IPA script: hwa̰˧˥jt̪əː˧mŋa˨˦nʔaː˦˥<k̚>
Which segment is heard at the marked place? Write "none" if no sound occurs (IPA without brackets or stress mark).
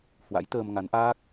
k̚